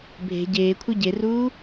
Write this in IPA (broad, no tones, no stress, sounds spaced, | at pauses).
bʱ e̤ ɟ eː kʷʰ ɯ ɟ e r uː